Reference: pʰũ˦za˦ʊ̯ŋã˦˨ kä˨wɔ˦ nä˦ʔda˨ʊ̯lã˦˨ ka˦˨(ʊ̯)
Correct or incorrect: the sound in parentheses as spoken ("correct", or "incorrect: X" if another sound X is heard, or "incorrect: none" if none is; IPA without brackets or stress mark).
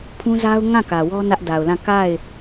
incorrect: ɪ̯